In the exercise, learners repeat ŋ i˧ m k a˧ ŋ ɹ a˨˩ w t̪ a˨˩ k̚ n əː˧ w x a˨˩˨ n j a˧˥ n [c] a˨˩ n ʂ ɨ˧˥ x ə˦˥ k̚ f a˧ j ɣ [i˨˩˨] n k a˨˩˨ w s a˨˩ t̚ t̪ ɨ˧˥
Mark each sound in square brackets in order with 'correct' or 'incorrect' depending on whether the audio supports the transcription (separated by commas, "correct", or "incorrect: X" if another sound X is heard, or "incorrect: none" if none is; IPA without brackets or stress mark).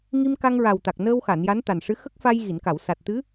incorrect: t̪, correct